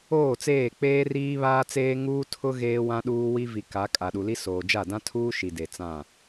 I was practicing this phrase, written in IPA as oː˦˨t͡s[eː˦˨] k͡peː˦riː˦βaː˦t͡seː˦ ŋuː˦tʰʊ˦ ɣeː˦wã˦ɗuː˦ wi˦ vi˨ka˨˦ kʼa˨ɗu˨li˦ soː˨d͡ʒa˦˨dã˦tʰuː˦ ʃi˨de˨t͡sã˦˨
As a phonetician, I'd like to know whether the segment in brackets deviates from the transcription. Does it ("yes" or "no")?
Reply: no